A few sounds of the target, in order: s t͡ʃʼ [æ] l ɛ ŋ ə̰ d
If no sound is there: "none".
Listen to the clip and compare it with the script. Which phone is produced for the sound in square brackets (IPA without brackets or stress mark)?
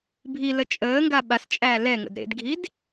æ